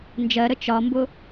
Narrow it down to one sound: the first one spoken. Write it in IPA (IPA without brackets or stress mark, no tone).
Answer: n